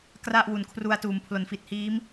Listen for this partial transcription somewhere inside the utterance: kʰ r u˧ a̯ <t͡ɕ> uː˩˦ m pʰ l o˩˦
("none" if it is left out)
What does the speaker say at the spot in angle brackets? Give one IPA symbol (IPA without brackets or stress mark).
t